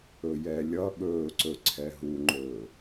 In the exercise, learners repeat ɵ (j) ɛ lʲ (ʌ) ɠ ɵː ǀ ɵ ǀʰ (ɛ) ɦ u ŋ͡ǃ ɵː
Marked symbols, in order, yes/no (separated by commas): yes, yes, yes